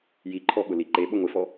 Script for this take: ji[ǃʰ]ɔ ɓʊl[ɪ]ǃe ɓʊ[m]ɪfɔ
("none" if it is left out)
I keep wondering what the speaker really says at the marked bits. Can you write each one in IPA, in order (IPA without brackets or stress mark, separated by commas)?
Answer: ǃʰ, i, ŋʷ